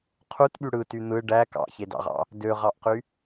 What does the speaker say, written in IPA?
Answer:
qʰutɓy ɽɯty n̪ɯ ɖæ kɑ̰çedɑ̰ʁɑ̰ | døʁɑʔqy

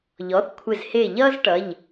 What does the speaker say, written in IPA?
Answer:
ʎɔ˩˥θkʷʰɪ˧˩z hɪ˧˩ ʎʌ˥z ʈʌ˩˧˩ʎ

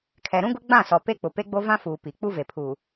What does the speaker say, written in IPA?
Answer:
kʰɛ˨ɾũ˦ɡʊ˦ ɡ͡bã˦˨sɔ˨ pe˦k͡pʊ˨ pe˦ɡ͡bo˦vã˦fuː˨ pi˨ k͡pu˦ve˨pʰuː˨

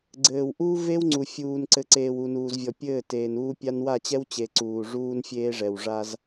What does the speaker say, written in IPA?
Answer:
ɡ͡ǀɘː˨w ʔuː˦ ve˦w ŋ͡ǀu˨ fʲuː˨nǀɘ˨ ǀeː˨wu˨ nuː˨zvʲɔ˨ pʲɘː˦˨ teː˨nuː˦pʲa˦n wa˦˨t͡ɕɛ˦wt͡ɕe˨ ǀuː˨ʐuː˦n fʲeː˦ʐɛ˨w ʐa˦z

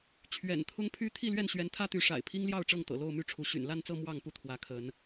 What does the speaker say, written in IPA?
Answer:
t͡ɕʰɥɛ̰˨˩nt̪ʰʊ˦ŋpʰy˦ t̪ʰi˥˨lɥɛ˥˨nɕɥɛ˨˦n t̪ʰä˦t̪y˨˦ʂa̰˨˩ɪ̯ pʰi˦ŋljɑ˥˨ʊ̯ʈ͡ʂɤ˥˨ŋ t̪ɤ̰˨˩lo˥˨ʊ̯my˥˨ʈ͡ʂʰu˨˦ ɕy̰˨˩n la˥˨nt͡sɤ˥˨ mwɑ˥˨ŋpu˥˨t̪ʰwä˨˦ kʰə˨˦n

